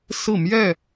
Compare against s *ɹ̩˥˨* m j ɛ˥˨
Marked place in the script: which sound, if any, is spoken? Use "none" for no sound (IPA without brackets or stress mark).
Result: ɹ̩˥˨